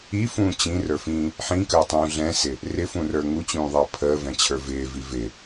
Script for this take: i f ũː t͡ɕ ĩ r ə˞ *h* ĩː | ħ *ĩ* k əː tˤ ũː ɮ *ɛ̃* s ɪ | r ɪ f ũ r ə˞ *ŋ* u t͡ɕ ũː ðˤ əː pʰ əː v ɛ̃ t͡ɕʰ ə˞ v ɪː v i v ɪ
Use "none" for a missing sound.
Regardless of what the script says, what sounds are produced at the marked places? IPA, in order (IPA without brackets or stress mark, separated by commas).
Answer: f, ĩ, ɛ̃, ŋ